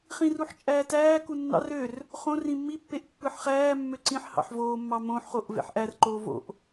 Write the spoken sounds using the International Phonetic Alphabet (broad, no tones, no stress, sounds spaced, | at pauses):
χ ĩ r u ħ t͡ʃʼ æː t æː k u nː ɑ̰ r ø r | χ õ r ĩ mː i pː e ʔ pː ɯː ħ χ æː mː ø ǀ ĩ ħ h ɑ̰ ħ v oː mː ɑ m õ ħ χ o ʔ v ḛ ħ ʔ æ r ǃ oː v o̰ ʔ